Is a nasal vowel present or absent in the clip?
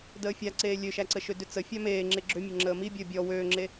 absent